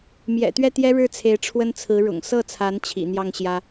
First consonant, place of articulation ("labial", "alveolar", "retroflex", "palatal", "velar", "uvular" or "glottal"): labial